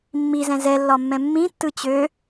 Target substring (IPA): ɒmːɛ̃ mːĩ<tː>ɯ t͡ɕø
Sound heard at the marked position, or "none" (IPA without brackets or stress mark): tː